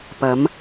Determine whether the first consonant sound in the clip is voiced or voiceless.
voiceless